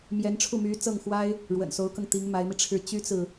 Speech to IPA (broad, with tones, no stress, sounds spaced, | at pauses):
m j ɛ˧˥ n ʈ͡ʂʰ u˥˩ m y˧˥ t͡s ɤ˥˩ ŋ x w a˥ ɪ̯ | ɻ w ə̰˨˩ n s o˧˥ ʊ̯ k ɤ˧ ŋ t̪ i˧˥ ŋ m a˧˥ ɪ̯ m i˧ ʈ͡ʂʰ ɻ̩˥˩ t͡ɕ y˥ t͡s ɹ̩˨